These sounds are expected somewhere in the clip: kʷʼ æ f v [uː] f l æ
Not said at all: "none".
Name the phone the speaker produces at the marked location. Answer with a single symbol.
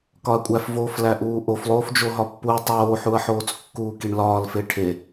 oː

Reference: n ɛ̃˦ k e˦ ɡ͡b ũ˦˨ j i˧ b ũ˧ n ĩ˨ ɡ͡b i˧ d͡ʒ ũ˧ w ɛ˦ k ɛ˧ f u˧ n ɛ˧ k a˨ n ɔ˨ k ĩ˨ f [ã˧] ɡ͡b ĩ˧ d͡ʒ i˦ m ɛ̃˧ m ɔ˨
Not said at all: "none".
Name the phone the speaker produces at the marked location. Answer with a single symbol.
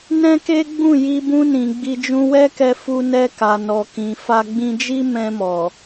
a˧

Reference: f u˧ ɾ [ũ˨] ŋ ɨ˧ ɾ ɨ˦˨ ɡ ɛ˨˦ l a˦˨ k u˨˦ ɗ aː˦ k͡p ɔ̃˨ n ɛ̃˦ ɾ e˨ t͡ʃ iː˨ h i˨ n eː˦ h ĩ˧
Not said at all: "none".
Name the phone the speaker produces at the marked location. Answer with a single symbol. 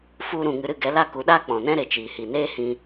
ũ˨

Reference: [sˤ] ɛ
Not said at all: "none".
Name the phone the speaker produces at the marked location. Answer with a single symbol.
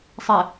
sˤ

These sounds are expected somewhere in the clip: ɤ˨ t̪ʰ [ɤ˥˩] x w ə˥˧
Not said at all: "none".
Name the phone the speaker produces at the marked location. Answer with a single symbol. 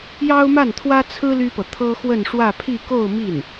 ɤ˥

